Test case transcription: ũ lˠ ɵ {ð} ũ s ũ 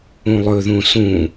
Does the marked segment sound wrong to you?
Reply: no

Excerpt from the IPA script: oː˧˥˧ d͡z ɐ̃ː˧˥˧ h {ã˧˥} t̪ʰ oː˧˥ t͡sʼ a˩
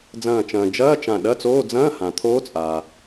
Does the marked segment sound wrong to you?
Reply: yes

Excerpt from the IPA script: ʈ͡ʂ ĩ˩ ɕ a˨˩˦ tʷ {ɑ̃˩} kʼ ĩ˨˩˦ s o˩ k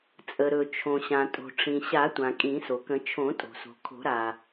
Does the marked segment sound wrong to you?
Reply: yes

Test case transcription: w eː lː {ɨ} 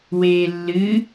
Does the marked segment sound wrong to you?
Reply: no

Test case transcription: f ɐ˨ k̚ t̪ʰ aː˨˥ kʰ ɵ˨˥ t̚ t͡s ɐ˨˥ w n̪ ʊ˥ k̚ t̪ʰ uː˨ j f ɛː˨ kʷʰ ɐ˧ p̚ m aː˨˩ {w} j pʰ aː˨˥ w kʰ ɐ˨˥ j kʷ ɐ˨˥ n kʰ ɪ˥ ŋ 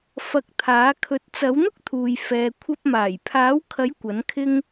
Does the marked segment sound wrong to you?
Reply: yes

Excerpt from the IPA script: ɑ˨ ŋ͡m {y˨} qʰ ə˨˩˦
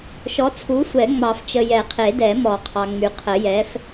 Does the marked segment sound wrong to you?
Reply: no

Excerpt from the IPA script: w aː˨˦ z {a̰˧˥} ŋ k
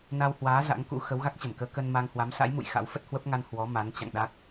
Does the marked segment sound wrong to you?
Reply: no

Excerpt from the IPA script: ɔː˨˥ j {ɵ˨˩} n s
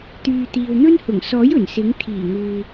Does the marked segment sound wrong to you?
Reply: no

